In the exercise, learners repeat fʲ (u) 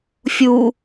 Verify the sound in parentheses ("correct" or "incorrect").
correct